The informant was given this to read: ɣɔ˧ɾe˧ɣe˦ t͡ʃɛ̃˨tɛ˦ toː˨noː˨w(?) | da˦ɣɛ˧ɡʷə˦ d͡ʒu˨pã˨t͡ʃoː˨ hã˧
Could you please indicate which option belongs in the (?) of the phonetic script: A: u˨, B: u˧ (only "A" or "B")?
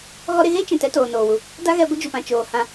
A